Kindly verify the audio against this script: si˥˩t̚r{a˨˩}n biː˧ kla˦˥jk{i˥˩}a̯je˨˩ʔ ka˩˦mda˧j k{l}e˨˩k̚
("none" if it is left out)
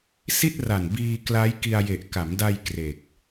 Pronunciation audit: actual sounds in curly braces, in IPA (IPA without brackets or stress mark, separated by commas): a˨˩, i˧, r